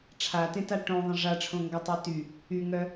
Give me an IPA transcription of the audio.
ʈ͡ʂʰ a t ẽ t a ʈ õ ðˤ ə̃ ʐ a ʈ͡ʂʰ õ ŋ ɡ ɔ tˤ œ t y | y ŋ œ

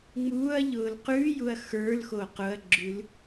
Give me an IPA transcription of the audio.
ŋ͡m uː ɐ̯ ʎ ʊː l q ʉ j u ɐ̯ x ə˞ l x o q ʊ ɐ̯ ɡ͡ǁ ʉ l

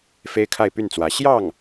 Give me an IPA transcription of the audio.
f e˥ ɪ̯ kʰ a˥˧ ɪ̯ p y˥˩ n t͡s w ä˧˥ ɕ j ɑ˥˩ ŋ

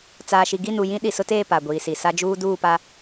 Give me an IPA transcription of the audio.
t͡s aː˨ ʃ i˨ ɡ i˦˨ n u˨ j ĩ˦ ɗ i˨ s ʊ˦ t eː˦˨ p a˨ ɡʷ iː˨ s i˨ s a˦ d͡ʒ uː˦ d uː˦˨ p a˦

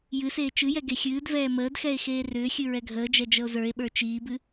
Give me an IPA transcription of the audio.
j ɨ s eː t͡ʃ ɨ j ɛ ɡ e xʲ ɨː d v ɛː m əː d x ɛ e̯ x eː r ʏː xʲ ɨ ɹ ɛ ɡʱ əː d͡ʒ ɛ d͡ʒ ə o̯ z ə˞ e̯ ɓ ə˞ t͡ʃ iː b ɨ

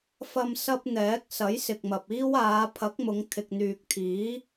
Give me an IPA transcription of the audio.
f ɐ˧ m s ɐ˥ p̚ n̪ ɛː˨˥ k̚ s ɐ˨˥ j s ɪ˨ k̚ m ɐ˨ p̚ iː˥ w aː˨˧ pʰ ɐ˨˥ k̚ m ʊ˨˧ ŋ t̪ʰ ɪ˨ k̚ n̪ yː˨ k̚ t̪ʰ iː˨˥

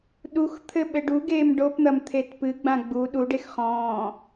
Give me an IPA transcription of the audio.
ɗ u x t̪ʰ ɘ ɓ ɘ ɖ u ɡ eː m ɖ o p n̪ ɐ m t̪ʰ e t p ɨ ɡ͡b ã ɡ͡b u ɗ u ɖ e x χ ɔ̃ː

